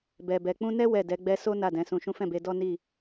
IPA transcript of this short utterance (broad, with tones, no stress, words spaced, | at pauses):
bɛ˨bɛ˨k͡pũ˧nɛ˦ wɛ˦˨dɛ˨˦ɡ͡bɛ˦ so˦ na˦˨dɛ̃˨˦sũ˧ʃũ˦ fɛ̃˦˨be˧dɔ˦ ni˦˨